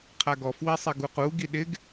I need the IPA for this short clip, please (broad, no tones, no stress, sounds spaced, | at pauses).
qʰ a ɡ ɔ f w i sˤ e ɡ u q u ɡ i ɗ ɪ ɡ